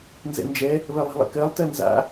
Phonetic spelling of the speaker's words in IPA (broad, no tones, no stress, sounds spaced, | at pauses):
n z ɛ̰ n d͡ʒ ɛ | β ɜ lˠ e̤ lˠ ɛ̰ k ɜ lˠ t ɜ n z a̰